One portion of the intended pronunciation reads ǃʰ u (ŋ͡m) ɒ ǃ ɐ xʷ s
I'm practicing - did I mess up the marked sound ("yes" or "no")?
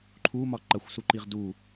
yes